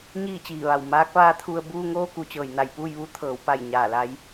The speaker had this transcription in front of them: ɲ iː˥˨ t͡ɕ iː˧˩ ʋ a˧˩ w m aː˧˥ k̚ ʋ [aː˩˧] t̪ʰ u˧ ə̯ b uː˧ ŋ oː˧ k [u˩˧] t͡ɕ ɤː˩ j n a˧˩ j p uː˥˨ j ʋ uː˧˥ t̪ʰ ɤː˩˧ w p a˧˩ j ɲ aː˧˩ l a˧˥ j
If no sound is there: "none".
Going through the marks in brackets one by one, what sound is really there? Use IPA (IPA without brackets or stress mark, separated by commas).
aː˧˥, u˩˧